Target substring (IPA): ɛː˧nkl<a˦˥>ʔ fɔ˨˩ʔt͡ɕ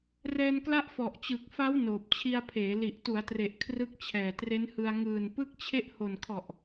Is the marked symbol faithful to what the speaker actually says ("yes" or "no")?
yes